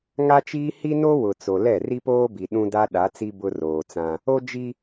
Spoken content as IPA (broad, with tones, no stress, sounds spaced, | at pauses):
ŋ a˦ t͡ʃ iː˦ h i˦ n o˦ w ʊ˨ t͡s o˨ l ɛ˦˨ r i˦ p oː˦ b i˨ ɗ ũ˦ d a˦ ɗ a˨˦ t͡s i˦ b ʊ˦ r oː˨ t͡s ã˦ | o˦ d͡ʒ i˦